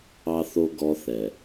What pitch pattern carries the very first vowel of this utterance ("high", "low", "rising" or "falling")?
high